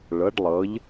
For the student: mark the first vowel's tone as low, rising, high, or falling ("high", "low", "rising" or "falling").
rising